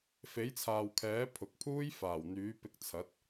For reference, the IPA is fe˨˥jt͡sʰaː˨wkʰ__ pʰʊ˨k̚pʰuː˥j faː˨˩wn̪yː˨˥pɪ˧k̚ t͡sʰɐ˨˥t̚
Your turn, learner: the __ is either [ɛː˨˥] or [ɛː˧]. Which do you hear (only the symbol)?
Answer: ɛː˨˥